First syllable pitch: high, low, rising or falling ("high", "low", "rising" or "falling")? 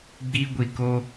high